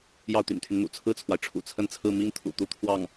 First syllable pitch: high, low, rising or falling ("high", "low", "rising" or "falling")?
falling